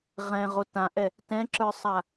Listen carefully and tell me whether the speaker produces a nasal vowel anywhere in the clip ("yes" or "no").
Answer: yes